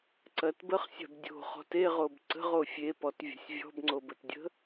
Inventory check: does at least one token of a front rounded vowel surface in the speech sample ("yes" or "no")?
no